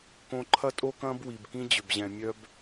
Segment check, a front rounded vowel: present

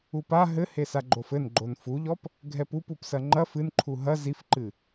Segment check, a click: present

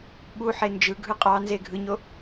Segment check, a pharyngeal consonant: present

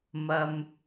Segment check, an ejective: absent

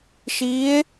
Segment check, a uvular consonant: absent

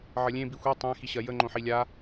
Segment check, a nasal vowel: present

